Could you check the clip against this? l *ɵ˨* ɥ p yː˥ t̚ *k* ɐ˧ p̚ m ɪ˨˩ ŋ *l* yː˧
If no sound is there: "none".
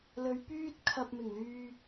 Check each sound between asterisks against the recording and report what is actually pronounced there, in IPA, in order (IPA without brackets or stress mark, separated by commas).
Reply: ɵ˨˧, kʰ, l